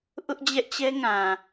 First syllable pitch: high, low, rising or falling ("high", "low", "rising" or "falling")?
high